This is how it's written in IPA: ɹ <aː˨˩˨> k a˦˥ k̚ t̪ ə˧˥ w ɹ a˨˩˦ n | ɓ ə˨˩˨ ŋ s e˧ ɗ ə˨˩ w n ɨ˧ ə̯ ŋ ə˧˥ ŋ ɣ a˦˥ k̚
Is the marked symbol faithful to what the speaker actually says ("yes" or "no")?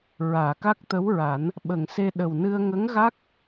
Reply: yes